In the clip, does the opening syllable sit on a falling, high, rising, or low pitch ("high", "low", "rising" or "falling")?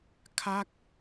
falling